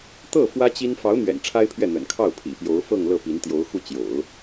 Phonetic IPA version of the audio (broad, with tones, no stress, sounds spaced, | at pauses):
t̪ ɤ˥˩ f w ä˥ t͡ɕ i˥ n f ɑ˧˥ ʊ̯ n̪ ɥ ɛ̰˨˩ n ʈ͡ʂʰ a˥ ɪ̯ pʰ ɥ ɛ˥˩ n̪ ə̰˨˩ n kʰ ɑ˥˩ ʊ̯ pʰ ḭ˨˩ p j o˧˥ ʊ̯ f ɤ˥˧ ŋ l ɤ˥˩ p i˧˥ n t̪ j o˧˥ ʊ̯ x u˥˩ t͡ɕ j o̰˨˩˦ ʊ̯